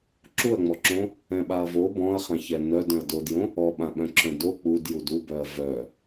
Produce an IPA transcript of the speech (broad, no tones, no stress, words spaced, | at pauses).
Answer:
ǁuɐ̯ŋ͡mɔǁõ | ɛ̃ɓaɐ̯vo bɔ̃ɐ̯χãçɛ nœd œ̃ɐ̯dodjõ | ɔɓã ɓœ̃ǁœ̃do k͡pudjud ubœɐ̯ vœ